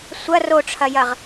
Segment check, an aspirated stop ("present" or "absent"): present